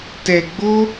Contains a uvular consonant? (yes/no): no